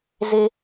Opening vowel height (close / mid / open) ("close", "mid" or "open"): mid